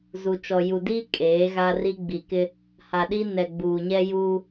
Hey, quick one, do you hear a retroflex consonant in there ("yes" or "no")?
no